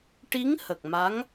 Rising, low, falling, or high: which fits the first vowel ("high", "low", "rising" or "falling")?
rising